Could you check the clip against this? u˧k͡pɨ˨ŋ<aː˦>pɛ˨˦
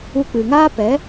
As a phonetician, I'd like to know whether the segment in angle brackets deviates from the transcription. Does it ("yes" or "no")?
no